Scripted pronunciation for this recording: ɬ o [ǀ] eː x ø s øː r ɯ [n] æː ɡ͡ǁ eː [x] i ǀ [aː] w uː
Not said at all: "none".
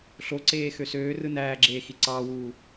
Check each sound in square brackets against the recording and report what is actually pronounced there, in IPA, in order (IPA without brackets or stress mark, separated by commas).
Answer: ǀ, n, x, ɑː